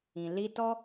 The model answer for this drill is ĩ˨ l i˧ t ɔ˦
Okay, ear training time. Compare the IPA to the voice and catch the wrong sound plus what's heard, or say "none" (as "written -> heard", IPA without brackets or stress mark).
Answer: none